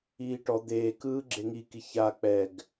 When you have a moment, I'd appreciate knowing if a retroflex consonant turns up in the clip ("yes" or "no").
yes